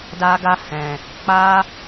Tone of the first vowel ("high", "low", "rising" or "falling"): high